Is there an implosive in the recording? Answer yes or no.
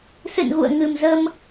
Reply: no